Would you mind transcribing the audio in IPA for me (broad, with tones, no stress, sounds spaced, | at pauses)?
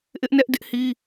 ʔ ɪ˦ ʔ n ɛ˦ ʔ d ɪ˦ ʔ h i˦